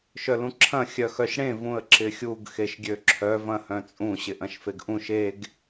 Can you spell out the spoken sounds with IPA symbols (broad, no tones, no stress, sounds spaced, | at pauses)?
ʃ œ l ũ ǁʰ ɐ̃ xʲ œ x œ ʃ ɽ ẽ v ũ ə̯ ǁ ɪ xʲ u ɡ x e ʃ ɡʲ ø ǁʰ œ v ɐ̃ h œ̃ t͡sʼ ũ ɕ ɪ ʔ ɐ̃ ʃ f e ɡ ʔ ũ ʃ e ɡ